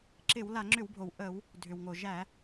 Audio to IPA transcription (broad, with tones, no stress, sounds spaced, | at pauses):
ǁ ɪ˧˩˧ w l a˧˩˧ ŋ͡ǁ ʏ˧˩˧ w bʱ o˩ w ʔ ə˧˩˧ w | dʱ ʏ˩ w ŋ o˩ ʒ æ˧˩˧